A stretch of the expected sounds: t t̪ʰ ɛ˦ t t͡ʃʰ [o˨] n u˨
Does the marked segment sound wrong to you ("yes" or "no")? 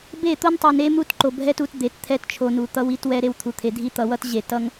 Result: no